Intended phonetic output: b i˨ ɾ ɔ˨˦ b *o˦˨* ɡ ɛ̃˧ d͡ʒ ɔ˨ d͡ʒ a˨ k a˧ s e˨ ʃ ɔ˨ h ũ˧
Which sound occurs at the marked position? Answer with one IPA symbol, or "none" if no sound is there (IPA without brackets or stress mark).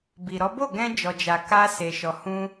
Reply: o˦˨